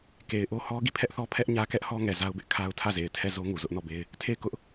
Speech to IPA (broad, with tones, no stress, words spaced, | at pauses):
ke˨ɪ̯ʔo˦hɔ˦ ɡi˦˨pʰɛ˦ʔθɔ˦ pʰɛ˦ʔɲä˦kɛ˦ʔhɔ˦ ŋɛ˨za˦ʊ̯bɪ˦ʔ kʰa˦ʊ̯ tʰä˦˨ze˨ɪ̯tʰɛ˦˨zo˦ ŋu˨zʊ˦ʔnɔ˦˨be˦ɪ̯ | tʰe˦˨ɪ̯kʊ˦ʔ